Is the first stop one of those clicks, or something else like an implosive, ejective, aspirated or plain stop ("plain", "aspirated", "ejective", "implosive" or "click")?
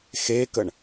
plain